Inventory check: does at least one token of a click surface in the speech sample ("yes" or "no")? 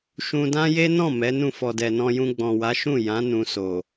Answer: no